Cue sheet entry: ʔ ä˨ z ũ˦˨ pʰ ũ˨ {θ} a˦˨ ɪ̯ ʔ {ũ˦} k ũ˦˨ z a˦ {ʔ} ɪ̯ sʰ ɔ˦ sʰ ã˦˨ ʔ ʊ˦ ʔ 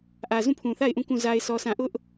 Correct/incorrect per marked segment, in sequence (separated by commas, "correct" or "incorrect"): correct, incorrect, incorrect